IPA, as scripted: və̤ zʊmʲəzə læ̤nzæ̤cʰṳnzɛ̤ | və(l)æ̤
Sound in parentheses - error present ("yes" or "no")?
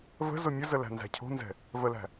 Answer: no